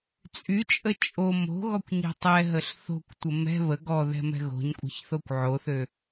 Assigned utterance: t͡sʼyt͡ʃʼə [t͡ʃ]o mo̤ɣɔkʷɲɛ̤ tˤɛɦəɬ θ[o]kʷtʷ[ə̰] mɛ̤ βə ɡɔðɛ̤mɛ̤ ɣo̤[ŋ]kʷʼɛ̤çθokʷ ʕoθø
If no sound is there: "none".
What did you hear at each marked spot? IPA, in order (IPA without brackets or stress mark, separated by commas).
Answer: t͡ʃʼ, o̤, ə, ɲ